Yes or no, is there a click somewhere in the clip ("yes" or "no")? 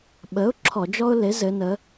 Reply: yes